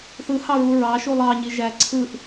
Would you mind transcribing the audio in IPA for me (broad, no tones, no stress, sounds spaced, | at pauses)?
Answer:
θ ɯ h ɑ ɹ u ɹ ɑ ʃ u lˠ ɑ ɲ i ʒ æ ǀʰ ɯ ʔ